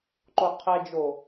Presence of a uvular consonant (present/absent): present